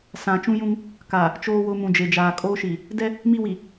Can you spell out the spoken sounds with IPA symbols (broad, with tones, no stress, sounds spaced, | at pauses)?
s ã˨ t͡ʃ ũ˦ j ũ˦ ŋ | k a˨ | t͡ʃ oː˦ w ʊ˦ m ũ˨ d͡ʒ e˨ d͡ʒ aː˨ kʼ oː˦ ʃ i˨ | d ɛ˦ | m i˦ w i˨